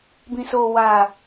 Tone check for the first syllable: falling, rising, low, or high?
low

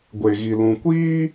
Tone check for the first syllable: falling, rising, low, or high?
low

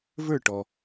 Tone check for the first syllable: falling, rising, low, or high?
falling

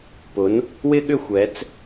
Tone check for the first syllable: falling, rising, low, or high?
rising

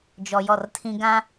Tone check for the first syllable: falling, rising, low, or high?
low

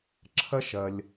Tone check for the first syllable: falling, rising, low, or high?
high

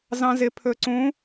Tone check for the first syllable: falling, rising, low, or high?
high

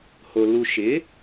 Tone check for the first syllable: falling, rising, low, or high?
low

